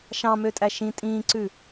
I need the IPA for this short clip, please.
ʃ ɑ̃ m ø tʼ æ ʃ ĩ tʼ ĩː ǀ ʉ

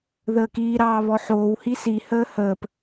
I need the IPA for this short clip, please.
ð əː k iː ɾ ɑː β ɔ ħ oː w h i s i h əː h əː p

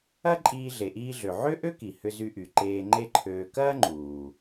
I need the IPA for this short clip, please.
ɐ˥ ǃʼ iː˧ ɮ e˩ ʔ iː˧ ɮ ø˩ ʕ ø˥ ʔ ø˥ k i˩ h ʏ˧ z y˧ ʔ y˩ ǃ eː˧ ŋ͡ǃ e˥ ǃʰ øː˧ k ɐː˥ ŋ͡ǃ uː˩

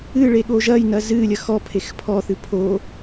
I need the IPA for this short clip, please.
ɨ ɭ e ɠ oː ʒ ɐː j n ɐ z ɨː lʲ ɐ x ɔ pʰ e x pʰ ɔ θ ɨ pʰ o

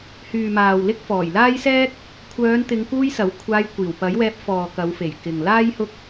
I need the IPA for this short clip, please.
h yː˨ m aː˨ w l ɪ˥ k̚ f ɔː˨˩ j l aː˥ j s ɛː˥ k̚ | kʷʰ œː˨˧ n t̪ ɪ˨˧ ŋ k uː˧ j s ɐ˨˥ w kʷʰ aː˧ j kʷ iː˨˩ w p ɐ˨˥ j w ɛː˧ p̚ f ɔː˨ k ɐ˨˧ w f e˨˩ j k ɪ˨ ŋ l aː˥ j h ʊ˥ k̚

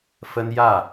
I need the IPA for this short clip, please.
f ə˥ n j ä˥˩

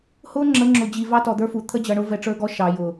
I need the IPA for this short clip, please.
h ʊ˦ ŋ͡ǁ ə˨˦ ŋ͡ǁ ʊ˨ d͡ʑ i˨ v ɑ˦ t ɔ˨ d̪ ə˞˦ f u˨ t̪ʰ ə˦ d͡ʑ ʌ˨ ɳ ʊ˦ v ɛ˨ ʈ͡ʂ ə˞˦ ɡ ɔ˦ ʃ ɑ˨ j ʊ˨

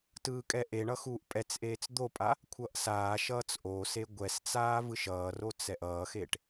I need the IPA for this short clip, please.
t ɯː kʼ ɛ ʔ e ɳ ʌ x uː ʔ pʼ ɛ t͡s ʔ eː t͡s d̪ o pʼ a | kʷʰ ʌ ʔ s aː ʃ ʌː t͡s ʔ oː s e ɡʷ ɛ s t͡s aː v ɯ ʃ ʌː r o t͡s ɛ ʔ ʌː x e ʈ

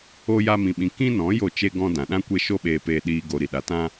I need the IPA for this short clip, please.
o˦ j a˦ m ĩ˧ ɓ ĩ˧ k ĩ˦ n ɔ̃˨˦ j o˦˨ t͡ʃ e˦ ɡ ɔ̃˦ d ã˨ ɗ ã˦ kʷ e˦ ʃ o˦ ɓ eː˧ p eː˧ ɗ iː˧ ɡ o˧ ɾ i˨ ɗ a˨˦ t ã˦

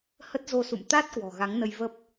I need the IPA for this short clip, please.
h ə˦˥ t̚ z o˧ s ṵ˧˨ m t̪ a˦˥ t̚ k w ɔ̤˨˩ ɣ a˨˦ ŋ n ə˧ j v ə˦˥ p̚

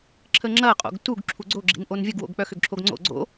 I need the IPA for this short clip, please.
ǁʰ ə ŋ͡ǁ ɐ qʼ o̰ ɡ t u ɡ ǁʰ u ɡ͡ǀ o ɡ͡ǁ ḭ n ʔ o n vʲ ə ɡ w o̰ ɡ k͡p œ x ʏ ɡ ǁʰ o ɡ ŋ͡ǀ o̰ ɡ͡ǀ o̰

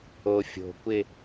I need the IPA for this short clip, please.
o fʲ o̤ kʷ ɪ

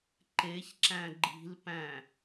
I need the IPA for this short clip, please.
ǃ e ç ǁ æ̃ ɡ͡ǃ i̤ l p æ̃

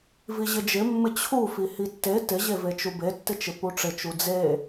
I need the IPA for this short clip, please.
v i ʑ ɪ d͡ʒ ɪ mː ɪ t͡ɕʰ u f i h i tː e t ɪ ʑ e v e t͡ʃ u b e tː ɪ t͡ʃ ɪ p u ʈ͡ʂ ɪ t͡ʃ u d͡z e

